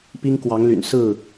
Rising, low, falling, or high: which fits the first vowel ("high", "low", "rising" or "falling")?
high